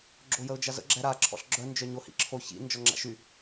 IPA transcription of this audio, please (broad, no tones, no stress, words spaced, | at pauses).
ɡ͡ǁojəʊ̯d͡ʒazə̰ ɡ͡ǁɛɾa ǁʰɔ̰ɬɡ͡ǁœ nd͡ʒœɲohḭǁʰo çḭ nd͡ʒɔŋ͡ǁa̰ʃy